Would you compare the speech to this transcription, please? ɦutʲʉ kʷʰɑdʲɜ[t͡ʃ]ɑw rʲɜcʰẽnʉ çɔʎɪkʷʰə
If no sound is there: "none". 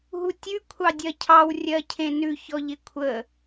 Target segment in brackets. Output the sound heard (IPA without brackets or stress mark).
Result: cʰ